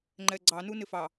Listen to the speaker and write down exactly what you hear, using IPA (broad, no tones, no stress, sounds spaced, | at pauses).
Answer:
ŋ͡ǃ ɛ ɡ͡ǀ ɑ n u n ɪ f ɑ